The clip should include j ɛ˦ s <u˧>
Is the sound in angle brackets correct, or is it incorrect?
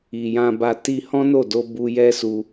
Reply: correct